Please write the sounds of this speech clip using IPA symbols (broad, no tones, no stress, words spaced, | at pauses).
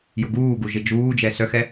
jʊɡuːɡu ʒɪd͡ʒuːd͡ʒɛ sœxɛ